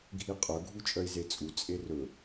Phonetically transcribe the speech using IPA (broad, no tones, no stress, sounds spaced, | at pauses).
ɡʱ i qʼ ɵ ɡʱ u t͡ʃʼ œ i̯ z e t͡sʼ u t͡sʼ e r ɵ